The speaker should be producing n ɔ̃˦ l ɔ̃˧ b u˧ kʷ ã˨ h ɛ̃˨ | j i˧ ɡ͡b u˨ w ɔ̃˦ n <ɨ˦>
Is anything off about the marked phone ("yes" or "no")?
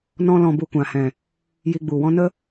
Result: yes